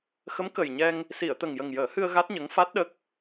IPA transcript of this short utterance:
x ə˧˥ m k ə˨˩ j ɲ ɛ˧ ŋ | s i˨˩˨ ə̯ t̪ ə˨˩ ŋ j ə˨˩ ŋ j əː˨˩˦ h ɨ˧ ə̯ ɣ a˦˥ t̚ ɲ ə˧˥ ŋ f a˦˥ t̚ ɗ ə˦˥ k̚

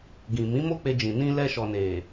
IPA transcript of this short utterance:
ɡ ĩ˨ m ĩ˨˦ m o˦ k͡p e˧ d͡ʒ ĩ˨ n ĩ˧ l ɛ˧ ʃ ɔ˨ n e˨

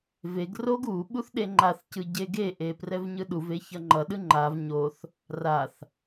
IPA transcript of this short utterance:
v e ɡ r o ɡ u ɓ u θ ɗ e ŋ͡ǃ a θ c ɯ ɟ e ɡ e ʔ e p r ɛ v ɲ ɯ ɗ u v e ç ʌ ŋ͡ǃ ʌ ɗ ɯ ŋ͡ǃ a v ɲ o θ | r a θ

